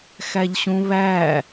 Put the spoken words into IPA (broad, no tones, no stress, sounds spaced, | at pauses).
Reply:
x æ ʎ ɕ ũ β æ